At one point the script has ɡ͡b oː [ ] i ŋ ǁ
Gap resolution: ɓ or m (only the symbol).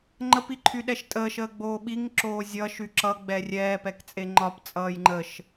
ɓ